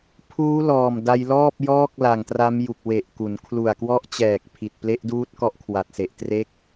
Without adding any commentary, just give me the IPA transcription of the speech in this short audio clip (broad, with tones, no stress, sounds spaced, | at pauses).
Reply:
pʰ uː˦˥ l ɔː˨˩ m d a˧ j l ɔː˥˩ p̚ j ɔː˥˩ k̚ l a˨˩ ŋ t r a˦˥ m j u˨˩ k̚ w e˨˩ ʔ k u˩˦ n kʰ l u˨˩ a̯ k w ɔ˦˥ ʔ t͡ɕ ɛː˨˩ k̚ pʰ i˨˩ t̚ p l e˦˥ ʔ d uː˦˥ t̚ k ɔ˦˥ ʔ kʰ w a˨˩ t̚ s e˨˩ ʔ t r e˥˩ k̚